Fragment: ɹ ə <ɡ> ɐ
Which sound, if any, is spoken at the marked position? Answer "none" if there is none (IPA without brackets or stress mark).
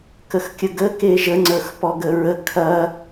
kʰ